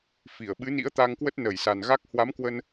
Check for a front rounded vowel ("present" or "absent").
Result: absent